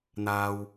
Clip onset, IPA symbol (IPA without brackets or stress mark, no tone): n̪